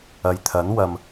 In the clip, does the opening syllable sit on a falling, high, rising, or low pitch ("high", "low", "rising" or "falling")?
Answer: low